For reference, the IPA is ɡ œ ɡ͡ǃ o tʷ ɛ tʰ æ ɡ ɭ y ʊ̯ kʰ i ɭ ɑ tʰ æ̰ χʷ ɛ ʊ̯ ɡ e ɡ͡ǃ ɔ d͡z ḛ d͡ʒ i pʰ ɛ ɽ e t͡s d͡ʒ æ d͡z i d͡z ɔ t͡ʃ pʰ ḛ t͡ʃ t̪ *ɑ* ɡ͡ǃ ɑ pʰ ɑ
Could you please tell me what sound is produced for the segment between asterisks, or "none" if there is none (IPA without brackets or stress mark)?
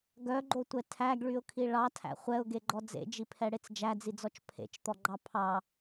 ɔ